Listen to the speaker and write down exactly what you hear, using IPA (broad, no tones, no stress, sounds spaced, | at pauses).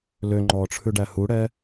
l ø ŋ͡ǃ ɔː ʈ͡ʂʰ ʉ ɖ æ h u ɽ ɛ